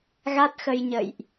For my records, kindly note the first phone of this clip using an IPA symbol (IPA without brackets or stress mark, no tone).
ɣ